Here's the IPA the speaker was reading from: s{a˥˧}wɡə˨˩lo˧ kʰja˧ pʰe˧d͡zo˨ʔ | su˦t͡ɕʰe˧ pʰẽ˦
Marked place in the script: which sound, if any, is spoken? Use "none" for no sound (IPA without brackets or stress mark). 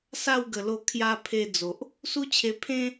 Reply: a˥˧